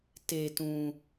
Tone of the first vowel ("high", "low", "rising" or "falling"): low